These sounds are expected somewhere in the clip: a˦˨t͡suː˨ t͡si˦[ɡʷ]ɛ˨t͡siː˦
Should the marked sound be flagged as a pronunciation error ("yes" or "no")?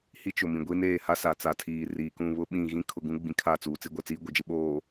no